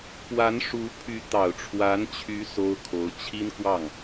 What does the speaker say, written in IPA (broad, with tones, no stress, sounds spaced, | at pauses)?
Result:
p w a˧˥ n ʂ u˧˥ pʰ y˧˥ t̪ ɑ˨˩ ʊ̯ ʈ͡ʂʰ w a˧˥ n t͡ɕʰ y˧˥ s o˥ ʊ̯ kʰ o˧˥ ʊ̯ t͡ɕʰ i˥ n k w ɑ˥˩ ŋ